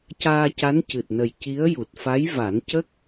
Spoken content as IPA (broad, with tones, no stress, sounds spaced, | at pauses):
c aː˧ c a˧˥ n c ɨ˨˩ t̚ n ə˨˩ j c i˧˥ ə̯ j u˨˩ t̚ f a˧˥ j v a˨˩˦ n c ə˦˥ k̚